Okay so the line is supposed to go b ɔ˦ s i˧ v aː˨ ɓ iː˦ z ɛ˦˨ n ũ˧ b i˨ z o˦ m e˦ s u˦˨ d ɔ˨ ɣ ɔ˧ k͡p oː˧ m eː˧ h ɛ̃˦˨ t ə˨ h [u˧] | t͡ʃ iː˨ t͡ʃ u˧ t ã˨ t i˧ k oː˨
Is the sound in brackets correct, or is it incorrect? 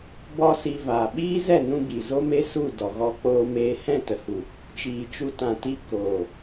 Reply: incorrect